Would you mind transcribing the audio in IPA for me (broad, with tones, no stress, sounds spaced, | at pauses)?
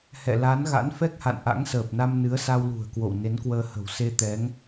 h ɛ̰˧˨ l a˨˦ n ɣ a̰˧˥ n f ɛ˦˥ k̚ h a̰˧˨ n ʔ a̰˧˥ ŋ s əː˨˩ p̚ n a˧ m n ɨ˨˦ ə̯ s a˧ w l ṳ˨˩ ə̯ k w o̰˧˨ w n e˨˦ n k w əː˧ h ə̤˨˩ w s e˧ t̪ ɛ˨˦ ŋ